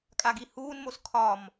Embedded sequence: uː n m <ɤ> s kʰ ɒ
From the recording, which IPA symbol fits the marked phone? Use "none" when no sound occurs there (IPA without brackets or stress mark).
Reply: o